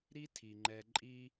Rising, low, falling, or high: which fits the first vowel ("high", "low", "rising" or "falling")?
high